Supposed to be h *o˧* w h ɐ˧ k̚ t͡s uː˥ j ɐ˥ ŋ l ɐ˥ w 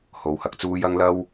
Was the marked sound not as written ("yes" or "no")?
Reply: no